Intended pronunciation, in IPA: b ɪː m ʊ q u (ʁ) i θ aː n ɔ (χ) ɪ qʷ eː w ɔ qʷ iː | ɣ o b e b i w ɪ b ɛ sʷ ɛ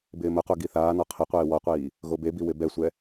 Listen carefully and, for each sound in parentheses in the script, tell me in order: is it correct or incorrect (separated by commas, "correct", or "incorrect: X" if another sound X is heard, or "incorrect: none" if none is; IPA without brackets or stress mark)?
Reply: incorrect: ɡ, incorrect: qʰ